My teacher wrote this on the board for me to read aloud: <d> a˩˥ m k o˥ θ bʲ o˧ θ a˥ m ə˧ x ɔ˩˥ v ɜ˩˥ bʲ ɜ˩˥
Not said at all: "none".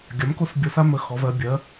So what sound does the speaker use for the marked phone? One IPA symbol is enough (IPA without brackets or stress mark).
ɡʲ